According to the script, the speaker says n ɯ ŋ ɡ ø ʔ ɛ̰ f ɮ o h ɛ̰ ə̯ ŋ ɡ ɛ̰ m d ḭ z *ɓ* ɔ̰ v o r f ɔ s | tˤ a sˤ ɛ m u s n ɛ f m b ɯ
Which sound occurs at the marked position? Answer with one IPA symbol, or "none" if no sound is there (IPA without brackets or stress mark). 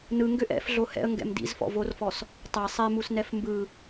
f